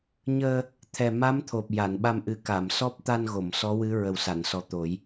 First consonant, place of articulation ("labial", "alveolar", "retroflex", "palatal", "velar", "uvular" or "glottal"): palatal